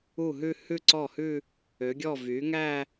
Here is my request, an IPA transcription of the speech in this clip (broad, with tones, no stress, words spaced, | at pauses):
u˥˩ɦʉ˥˧ hʉ˥˧ǀɔ˥˩hʉ˥˧ | ø˩˥ɡʲɔ˥˩ vy˩˥ŋæ˥˧